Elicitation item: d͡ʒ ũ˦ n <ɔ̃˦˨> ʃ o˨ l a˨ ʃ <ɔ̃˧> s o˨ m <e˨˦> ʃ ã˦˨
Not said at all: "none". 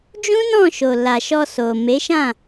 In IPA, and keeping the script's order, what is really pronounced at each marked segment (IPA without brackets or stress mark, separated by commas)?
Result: ɔ̃˦˨, ɔ˧, e˨˦